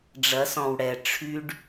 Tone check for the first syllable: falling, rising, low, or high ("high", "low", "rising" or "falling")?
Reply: rising